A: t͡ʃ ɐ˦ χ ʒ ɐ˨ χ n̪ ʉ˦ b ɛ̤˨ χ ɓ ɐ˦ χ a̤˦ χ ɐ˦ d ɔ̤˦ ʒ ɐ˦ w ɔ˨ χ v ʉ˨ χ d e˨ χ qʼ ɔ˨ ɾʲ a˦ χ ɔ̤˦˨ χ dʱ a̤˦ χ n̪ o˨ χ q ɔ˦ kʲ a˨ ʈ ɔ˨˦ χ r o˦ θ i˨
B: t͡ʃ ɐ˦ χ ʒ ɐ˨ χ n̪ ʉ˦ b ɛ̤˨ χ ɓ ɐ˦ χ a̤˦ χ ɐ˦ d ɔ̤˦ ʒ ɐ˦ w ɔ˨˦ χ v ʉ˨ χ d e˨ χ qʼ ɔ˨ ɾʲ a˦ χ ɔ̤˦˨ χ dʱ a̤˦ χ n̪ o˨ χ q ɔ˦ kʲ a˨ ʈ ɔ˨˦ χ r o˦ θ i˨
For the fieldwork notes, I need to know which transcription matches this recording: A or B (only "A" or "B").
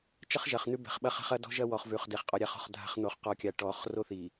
A